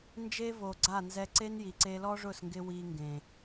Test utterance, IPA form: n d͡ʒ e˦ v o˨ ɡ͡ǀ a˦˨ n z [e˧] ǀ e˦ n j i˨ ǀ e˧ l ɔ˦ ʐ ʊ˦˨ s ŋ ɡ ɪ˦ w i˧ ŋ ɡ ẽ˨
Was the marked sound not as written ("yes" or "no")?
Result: yes